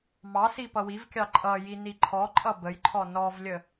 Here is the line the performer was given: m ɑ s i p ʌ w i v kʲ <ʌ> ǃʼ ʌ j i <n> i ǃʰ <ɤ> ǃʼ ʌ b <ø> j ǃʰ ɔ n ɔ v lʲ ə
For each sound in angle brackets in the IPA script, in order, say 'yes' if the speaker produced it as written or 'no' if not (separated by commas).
no, yes, no, no